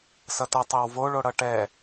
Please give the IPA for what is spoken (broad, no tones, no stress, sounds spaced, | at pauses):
s ʌ t ʌ tˤ e w v o ɭ o ɽ ʌ ʈ ɛ